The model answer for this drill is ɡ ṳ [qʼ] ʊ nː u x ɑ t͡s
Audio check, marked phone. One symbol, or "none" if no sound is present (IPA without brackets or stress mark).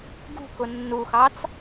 k